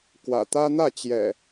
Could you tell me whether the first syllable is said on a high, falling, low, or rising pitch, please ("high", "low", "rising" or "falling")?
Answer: low